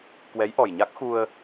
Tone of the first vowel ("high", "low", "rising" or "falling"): rising